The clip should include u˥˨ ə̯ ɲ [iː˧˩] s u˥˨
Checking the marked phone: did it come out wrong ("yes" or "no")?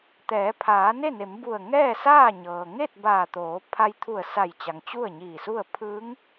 no